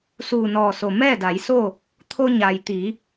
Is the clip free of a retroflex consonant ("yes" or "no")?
yes